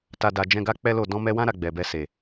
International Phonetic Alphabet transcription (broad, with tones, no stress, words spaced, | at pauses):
ta˨da˨ d͡ʒɛ̃˧ɡa˦ k͡pɛ˦lo˦˨ dɔ̃˧mɛ˧wã˦ ɾa˧ɡ͡bɛ˨bɛ˧ se˨